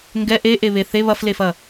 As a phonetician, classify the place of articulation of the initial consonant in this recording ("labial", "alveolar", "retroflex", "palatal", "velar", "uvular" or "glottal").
velar